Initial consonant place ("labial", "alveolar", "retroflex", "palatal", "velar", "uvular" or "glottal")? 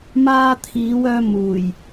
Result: labial